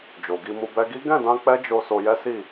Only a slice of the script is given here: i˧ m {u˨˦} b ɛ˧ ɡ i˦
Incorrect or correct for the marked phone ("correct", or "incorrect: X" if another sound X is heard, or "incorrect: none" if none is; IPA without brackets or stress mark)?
incorrect: u˧